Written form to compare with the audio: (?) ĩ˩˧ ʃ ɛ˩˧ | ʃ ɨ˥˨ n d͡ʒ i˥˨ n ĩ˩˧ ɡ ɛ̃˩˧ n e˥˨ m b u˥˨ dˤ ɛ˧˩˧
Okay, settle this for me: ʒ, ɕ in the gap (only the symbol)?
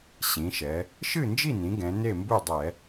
ɕ